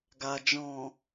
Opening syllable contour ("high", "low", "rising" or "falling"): low